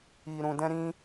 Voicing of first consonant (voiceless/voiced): voiced